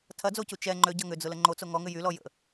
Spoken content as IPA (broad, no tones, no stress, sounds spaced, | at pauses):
tʰ ɐ d͡z o c u t͡ʃ ɛ ŋ͡ǃ ø ɟ ɐ ŋ ʏ d͡z ʊ l ə ŋ͡ǃ o t͡s o ŋ ɔ ŋ ʏ j y l ɔ j ə̰